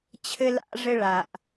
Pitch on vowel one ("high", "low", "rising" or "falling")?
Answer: high